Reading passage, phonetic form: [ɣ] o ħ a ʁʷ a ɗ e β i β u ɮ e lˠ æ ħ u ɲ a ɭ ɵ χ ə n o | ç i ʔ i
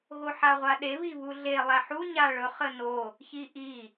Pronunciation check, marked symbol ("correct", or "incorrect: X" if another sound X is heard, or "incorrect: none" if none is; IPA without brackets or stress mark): correct